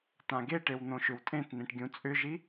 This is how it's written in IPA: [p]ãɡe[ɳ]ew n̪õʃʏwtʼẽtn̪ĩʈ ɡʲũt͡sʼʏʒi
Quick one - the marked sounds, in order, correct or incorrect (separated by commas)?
incorrect, incorrect